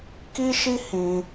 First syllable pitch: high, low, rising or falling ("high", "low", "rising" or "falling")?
high